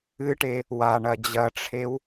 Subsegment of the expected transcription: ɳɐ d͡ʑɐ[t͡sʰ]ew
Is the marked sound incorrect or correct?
incorrect